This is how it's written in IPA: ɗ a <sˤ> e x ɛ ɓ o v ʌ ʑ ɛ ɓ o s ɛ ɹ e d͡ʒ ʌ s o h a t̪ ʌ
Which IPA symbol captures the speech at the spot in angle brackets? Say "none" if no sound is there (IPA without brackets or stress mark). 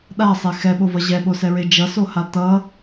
sˤ